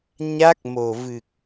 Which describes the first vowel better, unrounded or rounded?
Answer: unrounded